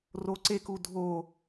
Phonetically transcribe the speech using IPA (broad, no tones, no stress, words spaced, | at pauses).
roǀeku dʱo